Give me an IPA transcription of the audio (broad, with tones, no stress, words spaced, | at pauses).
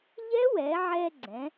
ʎɛ˦˥wɛ˩˧ʕɛ˧ɡ͡ǀɛ̃˩˧